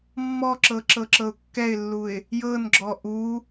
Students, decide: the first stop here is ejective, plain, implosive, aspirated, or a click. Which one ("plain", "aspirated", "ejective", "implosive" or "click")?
click